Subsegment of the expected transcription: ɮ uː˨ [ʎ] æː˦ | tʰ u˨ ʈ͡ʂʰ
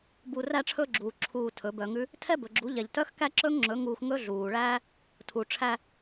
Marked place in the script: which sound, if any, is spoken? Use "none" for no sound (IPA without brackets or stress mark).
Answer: ɭ